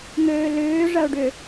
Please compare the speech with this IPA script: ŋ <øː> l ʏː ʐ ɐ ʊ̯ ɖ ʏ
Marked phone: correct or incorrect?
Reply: correct